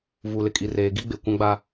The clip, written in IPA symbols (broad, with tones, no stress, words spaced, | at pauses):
vu˨lɪ˨kʼi˨reː˨ ɡi˦ɡ͡be˨ kʷã˦ɡ͡ba˦